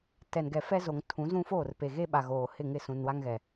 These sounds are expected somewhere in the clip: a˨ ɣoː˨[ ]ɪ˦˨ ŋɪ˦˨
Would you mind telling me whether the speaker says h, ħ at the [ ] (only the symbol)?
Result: h